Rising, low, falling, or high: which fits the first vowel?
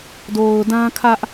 low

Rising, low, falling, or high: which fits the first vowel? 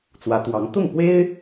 rising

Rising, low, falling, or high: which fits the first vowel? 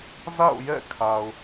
falling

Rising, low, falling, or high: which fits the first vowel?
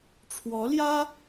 rising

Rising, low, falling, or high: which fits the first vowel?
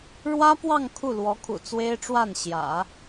high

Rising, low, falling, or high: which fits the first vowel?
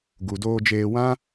low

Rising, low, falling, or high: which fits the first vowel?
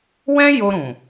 high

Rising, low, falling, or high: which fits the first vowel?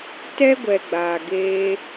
high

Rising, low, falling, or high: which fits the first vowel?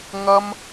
high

